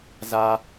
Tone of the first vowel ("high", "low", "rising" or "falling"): high